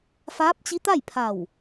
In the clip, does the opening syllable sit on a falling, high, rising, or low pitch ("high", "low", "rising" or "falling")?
rising